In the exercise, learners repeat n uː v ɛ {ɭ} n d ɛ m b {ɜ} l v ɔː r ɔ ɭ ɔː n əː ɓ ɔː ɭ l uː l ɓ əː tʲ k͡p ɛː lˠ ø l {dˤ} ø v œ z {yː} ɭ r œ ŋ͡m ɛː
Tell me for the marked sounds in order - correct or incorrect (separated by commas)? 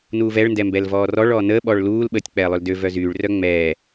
correct, incorrect, incorrect, correct